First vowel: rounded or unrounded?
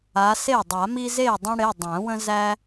unrounded